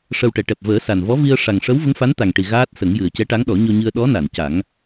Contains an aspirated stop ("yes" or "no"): no